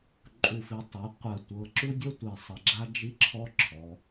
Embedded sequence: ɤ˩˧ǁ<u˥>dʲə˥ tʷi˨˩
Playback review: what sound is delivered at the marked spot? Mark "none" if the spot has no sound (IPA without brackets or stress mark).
u˥